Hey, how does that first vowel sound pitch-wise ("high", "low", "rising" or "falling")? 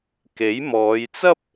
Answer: rising